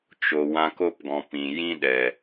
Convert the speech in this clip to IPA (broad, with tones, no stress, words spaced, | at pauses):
t͡ʃo˨ wã˧ko˦pɡɔ̃˨ pĩ˨ jĩ˦ɗɛ˨